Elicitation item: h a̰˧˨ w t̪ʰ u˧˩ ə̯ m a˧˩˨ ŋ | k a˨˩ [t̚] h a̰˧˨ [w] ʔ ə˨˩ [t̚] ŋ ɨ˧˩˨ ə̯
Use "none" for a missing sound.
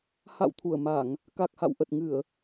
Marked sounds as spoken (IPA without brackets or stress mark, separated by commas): k̚, w, t̚